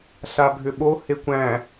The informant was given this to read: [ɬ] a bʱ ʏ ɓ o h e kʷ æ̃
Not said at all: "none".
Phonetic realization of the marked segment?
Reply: ɬ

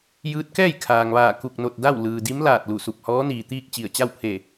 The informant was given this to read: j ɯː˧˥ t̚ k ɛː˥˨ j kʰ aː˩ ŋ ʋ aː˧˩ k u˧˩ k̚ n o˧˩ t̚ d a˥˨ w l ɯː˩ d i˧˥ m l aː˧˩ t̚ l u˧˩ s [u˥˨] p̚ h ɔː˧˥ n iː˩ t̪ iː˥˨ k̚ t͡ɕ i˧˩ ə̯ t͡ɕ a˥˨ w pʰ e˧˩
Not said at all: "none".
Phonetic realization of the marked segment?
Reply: u˧˩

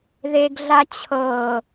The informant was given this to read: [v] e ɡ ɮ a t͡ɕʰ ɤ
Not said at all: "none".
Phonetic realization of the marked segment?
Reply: ð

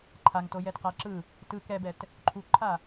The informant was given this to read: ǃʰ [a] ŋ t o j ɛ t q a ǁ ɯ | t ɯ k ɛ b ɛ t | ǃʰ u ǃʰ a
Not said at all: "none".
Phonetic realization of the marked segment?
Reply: a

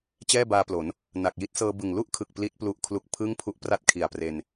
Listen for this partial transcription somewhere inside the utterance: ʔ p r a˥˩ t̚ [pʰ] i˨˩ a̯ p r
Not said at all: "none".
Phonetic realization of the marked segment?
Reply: kʰ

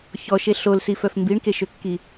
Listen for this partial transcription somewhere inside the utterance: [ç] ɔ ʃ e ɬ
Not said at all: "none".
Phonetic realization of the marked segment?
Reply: ç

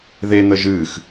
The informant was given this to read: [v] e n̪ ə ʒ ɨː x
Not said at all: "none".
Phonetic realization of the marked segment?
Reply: ð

